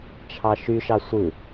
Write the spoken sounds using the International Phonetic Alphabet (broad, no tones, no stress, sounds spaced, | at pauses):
t͡ʃʰ ɑ ʃ y ʃ ɑ sʷ ɯ